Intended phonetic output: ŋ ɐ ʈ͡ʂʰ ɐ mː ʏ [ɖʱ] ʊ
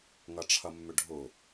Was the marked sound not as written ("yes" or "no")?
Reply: no